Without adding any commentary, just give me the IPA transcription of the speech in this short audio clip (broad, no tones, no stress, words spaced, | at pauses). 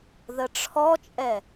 ðəʈ͡ʂʰɔt͡ʃʼɛ